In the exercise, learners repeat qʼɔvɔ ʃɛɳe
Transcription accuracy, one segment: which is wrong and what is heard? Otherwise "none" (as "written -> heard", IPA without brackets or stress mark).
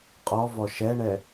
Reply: e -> ɛ